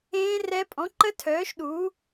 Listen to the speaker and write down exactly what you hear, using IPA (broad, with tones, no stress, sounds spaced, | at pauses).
ẽː˦˥ r ɛ˦˥ pʼ ɔ̃˨˦ ǃ ə˦˥ tʰ œː˨˦ ʃ ɗ uː˨˦